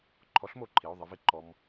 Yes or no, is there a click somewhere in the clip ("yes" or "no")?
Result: yes